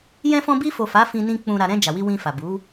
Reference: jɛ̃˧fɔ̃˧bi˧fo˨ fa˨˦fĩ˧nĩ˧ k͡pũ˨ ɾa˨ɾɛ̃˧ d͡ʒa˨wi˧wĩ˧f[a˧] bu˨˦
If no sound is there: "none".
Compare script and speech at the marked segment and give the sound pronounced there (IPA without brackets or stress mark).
a˨